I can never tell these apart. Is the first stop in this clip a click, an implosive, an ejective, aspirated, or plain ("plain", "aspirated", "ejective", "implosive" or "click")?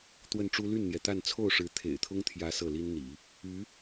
plain